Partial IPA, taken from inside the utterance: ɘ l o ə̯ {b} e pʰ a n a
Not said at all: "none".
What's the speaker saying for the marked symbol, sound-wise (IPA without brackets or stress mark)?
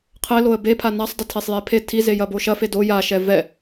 b